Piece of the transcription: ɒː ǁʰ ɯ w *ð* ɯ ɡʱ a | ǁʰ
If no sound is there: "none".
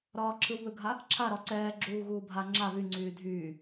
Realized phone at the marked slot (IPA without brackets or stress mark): ð